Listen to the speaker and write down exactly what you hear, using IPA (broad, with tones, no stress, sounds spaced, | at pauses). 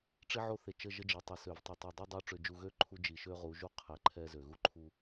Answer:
ʈ͡ʂ i˦ ʕ o˦ θ e˨ t͡ʃ ə˦˨ ʒ ə˦ d͡ʒ e˨˦ tˤ ə˨ s ø˨ v tˤ e˨ tˤ u˨ dˤ i˦ dˤ o˦ ʈ͡ʂ ø˨ d͡ʒ u˨ ɣ ø˦ ǃʰ u˦ d͡ʒ i˨ ʃ ø˦ ʁ u˨˦ ʒ u˦ qʰ ɛ˨ ǃʰ ɛ˦ z ø˨ ɣ u˦ ǃʰ u˦